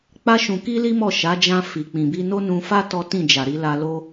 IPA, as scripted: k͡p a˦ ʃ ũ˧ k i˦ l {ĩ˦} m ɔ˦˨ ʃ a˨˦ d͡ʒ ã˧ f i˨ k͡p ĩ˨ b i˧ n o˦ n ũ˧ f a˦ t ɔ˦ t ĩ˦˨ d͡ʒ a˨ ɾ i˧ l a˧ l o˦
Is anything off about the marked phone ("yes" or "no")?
yes